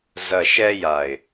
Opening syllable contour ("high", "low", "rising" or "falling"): low